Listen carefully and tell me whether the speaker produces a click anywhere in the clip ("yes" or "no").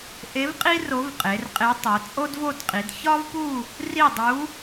no